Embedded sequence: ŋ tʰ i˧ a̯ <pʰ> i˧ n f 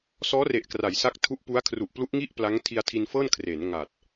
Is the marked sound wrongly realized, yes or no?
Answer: yes